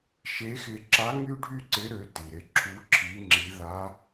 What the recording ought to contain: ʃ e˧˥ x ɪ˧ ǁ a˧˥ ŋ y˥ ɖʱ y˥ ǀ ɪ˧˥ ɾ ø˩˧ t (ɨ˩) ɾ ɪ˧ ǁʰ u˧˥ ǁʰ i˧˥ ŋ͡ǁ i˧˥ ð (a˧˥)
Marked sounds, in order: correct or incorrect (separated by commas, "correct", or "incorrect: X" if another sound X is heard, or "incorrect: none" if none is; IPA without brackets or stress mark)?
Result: incorrect: i˩, correct